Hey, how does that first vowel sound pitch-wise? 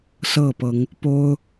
falling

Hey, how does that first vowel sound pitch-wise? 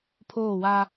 falling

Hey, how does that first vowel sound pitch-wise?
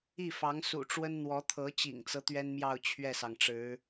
falling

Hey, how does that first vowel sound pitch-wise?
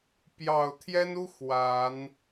low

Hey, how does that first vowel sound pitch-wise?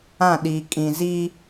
falling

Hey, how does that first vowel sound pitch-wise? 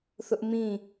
high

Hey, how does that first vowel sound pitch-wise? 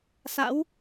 rising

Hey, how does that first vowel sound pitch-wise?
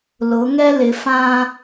rising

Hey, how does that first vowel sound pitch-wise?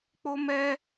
high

